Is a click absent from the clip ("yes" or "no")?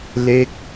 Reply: yes